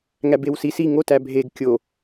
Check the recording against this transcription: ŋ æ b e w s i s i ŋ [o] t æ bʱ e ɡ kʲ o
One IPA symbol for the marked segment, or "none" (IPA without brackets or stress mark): o